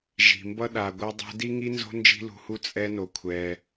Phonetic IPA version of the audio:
ʒ i̤˨ m b ʌ˦ ɗ a˧ ɡʷ ʌ˦ dˤ ṳ˦ d i˦ ŋ i˦ n z o̤˦ n d͡ʒ i̤˦ l ṳ˧ h u˦ t͡sʼ ɛ˦ n o˧ kʷʰ ɛ˧

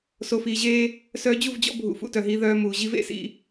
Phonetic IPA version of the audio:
s o˨ f iː˨ ʑ eː˦ | s œː˧ d͡ʑ u˦˨ v d͡ʑ ɔ̰˦ bʱ ṵ˨ f ṵ˧ t œ˨ ɦ iː˧ ð œː˧ m uː˨ ʑ i˦ v ḛ˧ s ḭ˦

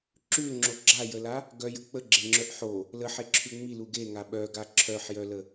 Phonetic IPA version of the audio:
ǁ ʉ l ŋ͡ǁ o ɡ͡ǁ a j ə l a | ɡ œ j ə k͡p ə ɡ͡ǁ e ŋ͡ǁ œ ʔ ħ o | l ə ħ e ǁʰ ʉ ŋ͡m i l u ɡ e ŋ a ɓ œ ɡ a ǁʰ œ ħ j œ l ə

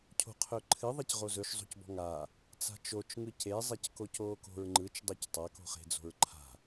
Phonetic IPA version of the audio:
cʰ o̤ qʰ ɵ ǃʰ ɨ ðˤ e c ʁ o z ɵ ʃ zˤ o̤ c b ɔ̤ ŋ a | t͡s a̤ t͡ʃ o t͡ʃ ŋ ɯ c e zˤ e c k o c oː k o̤ ɹ ŋ͡ǃ ɯ t͡ʃ dˤ o c tˤ a k o̤ χ e̤ d͡z o̤ ɹ ǃʰ a̤

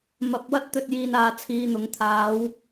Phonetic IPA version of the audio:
m ɐ˨˥ p̚ w ɐ˥ t̚ t̪ ɵ˧ t̚ j iː˧ n aː˨˧ t͡sʰ iː˧ n̪ ʊ˨˥ ŋ t̪ʰ aː˨˧ w

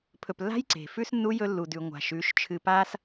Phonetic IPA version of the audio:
pʰ ɵ˨ p lː a̤˦ j ǀ e̤˨ f ʉ˦ s nː u˦ j ɵ˦ lː u˨ d ʉ˨ ŋʷ a̤˨ ʃ ʉ˨˦ ʃ t͡ʃʰ ɨ˨ p a˦ s

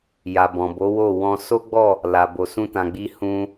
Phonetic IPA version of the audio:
j a˨ b ɔ̃˨ b o˨˦ w o˦˨ w ɔ̃˧ s o˦ ɡ͡b ɔ˦˨ | l a˨ b o˨ s ũ˧ t ã˨ ɡ͡b i˧ h ũ˧

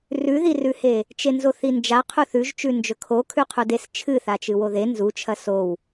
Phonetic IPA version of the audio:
r ʉ ð i r ʉ h e | t͡ʃ e n z o θ i n d͡ʒ a qʰ u θ ʉ ʒ t͡ʃ ʉ n d͡ʒ ɵ kʰ o kʰ ʉ qʰ u d e s t͡ʃʰ ɨ θ a t͡ʃ ɨ w o ð e n z u t͡ʃʰ ɐ s o w

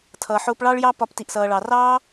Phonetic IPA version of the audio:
tʰ ʌː˧ ħ ʊː˧ p ɭ ɑ˦ ɭ j ɑ˦ p ɒ˧ p t i˧ ʔ s ʌː˧ ɭ ɑ˧ r ɑː˦

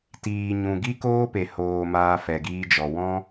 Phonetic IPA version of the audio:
t iː˨ ɲ ũ˨ ɡ i˦ k oː˦ p e˨ h oː˨ m aː˧ f ɛ˨ ɡ iː˧ d͡ʒ ɔ˨ w ɔ̃˦

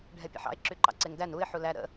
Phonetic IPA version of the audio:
ɖʱ ɛ pʲ a̰ ħ ɑ̰ ɪ̯ ǁ y ǃ ɑ̰ ǀ e ŋ d æ n u ɪ̯ ħ u l æ ɾ ə̰

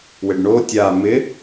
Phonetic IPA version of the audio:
w ɪ ɖ ɳ o tʲ a m ɪ

